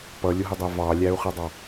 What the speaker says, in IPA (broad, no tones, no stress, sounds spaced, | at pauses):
p ʌ lʲ ʊ ɦ ə dˤ æ v ɑ lʲ æ u̯ χ ɛ dˤ ɑ